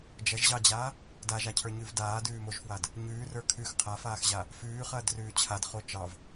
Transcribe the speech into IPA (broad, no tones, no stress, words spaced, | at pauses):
d͡ʒɐʒʑɑd͡ʑaː | daʒacʰə˞ɲʉv daːdʉːmoʒfwad | ɲʉːrə˞ kʰʉx qʰafaːxʑa | fʉːχɐːdrʉː t͡ɕʰadχo t͡ʃɑv